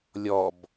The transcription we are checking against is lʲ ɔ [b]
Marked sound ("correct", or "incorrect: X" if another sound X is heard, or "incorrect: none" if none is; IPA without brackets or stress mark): correct